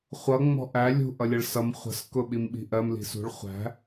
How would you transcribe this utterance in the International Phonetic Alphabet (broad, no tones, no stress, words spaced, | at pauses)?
χʷʌ ŋ͡mɔ̤ʔæ lʲṳ ʔʌlʲʌɭsʌm χʷə̤s kʊɓimɓi̤ʔɜm li̤sṳɭ χʷæ̤